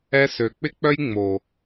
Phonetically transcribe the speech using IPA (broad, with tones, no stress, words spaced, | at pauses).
ɛ˧sø˨k͡pɪ˦k͡pœ˦j ŋ͡mo˨